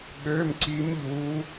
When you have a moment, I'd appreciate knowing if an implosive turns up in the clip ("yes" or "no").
yes